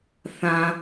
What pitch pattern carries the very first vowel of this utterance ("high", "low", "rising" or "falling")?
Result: low